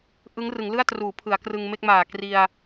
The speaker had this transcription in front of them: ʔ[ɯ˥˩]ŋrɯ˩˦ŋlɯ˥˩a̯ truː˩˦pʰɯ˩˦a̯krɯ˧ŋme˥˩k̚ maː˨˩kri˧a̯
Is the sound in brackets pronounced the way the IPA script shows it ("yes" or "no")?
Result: no